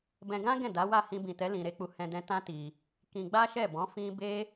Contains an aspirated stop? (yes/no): no